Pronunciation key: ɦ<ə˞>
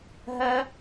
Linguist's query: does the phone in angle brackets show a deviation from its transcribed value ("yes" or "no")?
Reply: yes